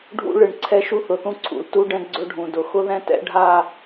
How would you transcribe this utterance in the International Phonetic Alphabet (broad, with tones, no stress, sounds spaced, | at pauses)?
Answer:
ɖʱ ṵ˦ ɭ ɨ˨ ɳ ǀʰ ɛ˦ ʃ u˦ θ ʊ˨ θ ũ˦ ǀʰ ṵ˨ l t u˦ ɖ ɛ̃˦ ɡ͡ǀ ɵ˦ ɖʱ ũ˨ d ʊ˨ x ʊ˦ ð ɛ̃˦ t ɛ̰˦ ɖʱ a˦˨